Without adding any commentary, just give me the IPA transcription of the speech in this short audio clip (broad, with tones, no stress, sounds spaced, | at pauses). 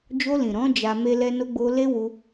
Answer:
d͡ʒ o˧ l ĩ˨ ɾ ɔ̃˨˦ d͡ʒ a˧ m e˦ l ɛ˦ n o˧ ɡ͡b o˧ l e˦ w u˧